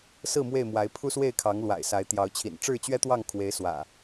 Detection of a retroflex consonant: present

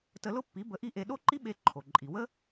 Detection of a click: present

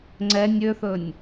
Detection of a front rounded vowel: present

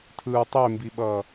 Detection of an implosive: present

